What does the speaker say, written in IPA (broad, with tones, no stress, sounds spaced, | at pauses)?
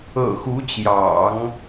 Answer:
ɤ̰˨˩ x u˧˥ t͡ɕ j ɑ̰˨˩˦ ŋ